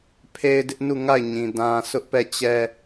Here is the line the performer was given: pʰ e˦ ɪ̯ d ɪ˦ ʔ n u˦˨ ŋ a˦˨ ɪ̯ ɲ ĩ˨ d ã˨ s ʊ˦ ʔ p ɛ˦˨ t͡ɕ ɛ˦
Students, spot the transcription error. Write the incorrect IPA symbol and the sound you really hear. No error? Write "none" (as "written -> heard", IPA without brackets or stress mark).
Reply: none